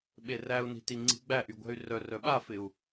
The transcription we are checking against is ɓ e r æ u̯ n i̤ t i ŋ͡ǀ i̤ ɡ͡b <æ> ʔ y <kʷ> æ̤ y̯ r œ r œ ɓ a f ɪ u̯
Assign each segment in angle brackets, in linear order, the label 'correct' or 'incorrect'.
correct, incorrect

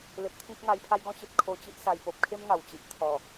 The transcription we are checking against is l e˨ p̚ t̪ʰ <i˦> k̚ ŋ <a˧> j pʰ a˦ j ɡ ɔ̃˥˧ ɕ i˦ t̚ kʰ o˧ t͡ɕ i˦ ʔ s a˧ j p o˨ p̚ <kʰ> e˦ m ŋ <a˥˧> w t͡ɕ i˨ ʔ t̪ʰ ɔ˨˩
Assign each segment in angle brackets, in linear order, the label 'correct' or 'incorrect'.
incorrect, correct, correct, incorrect

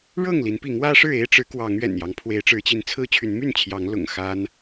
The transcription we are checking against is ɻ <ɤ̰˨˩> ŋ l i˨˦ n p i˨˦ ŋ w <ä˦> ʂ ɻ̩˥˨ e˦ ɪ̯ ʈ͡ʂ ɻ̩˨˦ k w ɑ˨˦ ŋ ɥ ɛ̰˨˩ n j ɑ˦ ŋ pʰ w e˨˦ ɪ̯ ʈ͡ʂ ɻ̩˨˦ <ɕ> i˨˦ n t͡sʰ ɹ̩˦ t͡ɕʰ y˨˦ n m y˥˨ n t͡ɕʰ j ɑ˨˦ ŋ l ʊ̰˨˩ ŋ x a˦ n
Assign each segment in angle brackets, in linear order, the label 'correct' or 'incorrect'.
incorrect, correct, incorrect

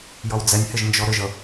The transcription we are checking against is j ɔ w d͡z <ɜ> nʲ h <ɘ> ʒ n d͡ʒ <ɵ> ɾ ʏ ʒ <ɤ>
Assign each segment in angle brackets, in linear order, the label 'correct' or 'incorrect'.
incorrect, correct, incorrect, correct

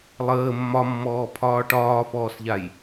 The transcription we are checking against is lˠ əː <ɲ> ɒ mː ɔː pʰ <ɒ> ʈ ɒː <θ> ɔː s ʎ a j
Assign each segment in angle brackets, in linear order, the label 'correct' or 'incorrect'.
incorrect, incorrect, incorrect

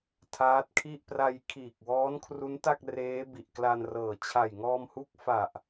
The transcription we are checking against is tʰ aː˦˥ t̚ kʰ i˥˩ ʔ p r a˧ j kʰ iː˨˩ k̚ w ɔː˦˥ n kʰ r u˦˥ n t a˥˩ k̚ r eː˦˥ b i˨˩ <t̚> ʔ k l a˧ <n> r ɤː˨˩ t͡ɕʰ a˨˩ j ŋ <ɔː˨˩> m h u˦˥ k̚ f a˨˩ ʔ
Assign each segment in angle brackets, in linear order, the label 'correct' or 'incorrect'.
incorrect, correct, incorrect

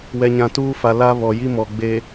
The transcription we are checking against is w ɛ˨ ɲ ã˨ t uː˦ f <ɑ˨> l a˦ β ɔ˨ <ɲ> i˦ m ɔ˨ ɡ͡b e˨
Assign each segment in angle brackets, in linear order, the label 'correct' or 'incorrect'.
incorrect, incorrect

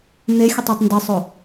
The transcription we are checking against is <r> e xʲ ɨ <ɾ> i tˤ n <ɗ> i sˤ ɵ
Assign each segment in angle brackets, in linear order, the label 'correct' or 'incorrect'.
incorrect, incorrect, incorrect

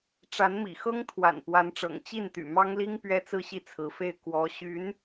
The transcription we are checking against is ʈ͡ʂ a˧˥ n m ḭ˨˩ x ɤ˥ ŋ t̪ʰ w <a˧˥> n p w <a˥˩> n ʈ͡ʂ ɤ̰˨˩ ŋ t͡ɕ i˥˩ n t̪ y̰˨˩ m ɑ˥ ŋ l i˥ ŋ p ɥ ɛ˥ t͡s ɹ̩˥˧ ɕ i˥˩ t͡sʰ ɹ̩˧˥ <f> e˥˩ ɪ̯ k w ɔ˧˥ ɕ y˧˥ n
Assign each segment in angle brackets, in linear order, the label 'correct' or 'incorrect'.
incorrect, incorrect, correct

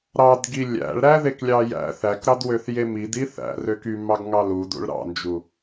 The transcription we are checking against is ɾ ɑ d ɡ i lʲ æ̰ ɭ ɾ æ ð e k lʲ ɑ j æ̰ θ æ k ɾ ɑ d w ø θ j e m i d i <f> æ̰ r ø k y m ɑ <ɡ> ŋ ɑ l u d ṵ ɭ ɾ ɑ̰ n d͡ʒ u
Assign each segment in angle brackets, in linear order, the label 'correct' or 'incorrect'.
incorrect, correct

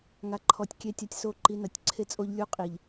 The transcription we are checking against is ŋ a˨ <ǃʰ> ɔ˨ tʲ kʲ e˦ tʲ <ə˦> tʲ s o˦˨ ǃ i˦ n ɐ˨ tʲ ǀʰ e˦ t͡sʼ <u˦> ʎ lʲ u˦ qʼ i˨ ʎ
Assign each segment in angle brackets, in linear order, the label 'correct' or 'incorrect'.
correct, incorrect, incorrect

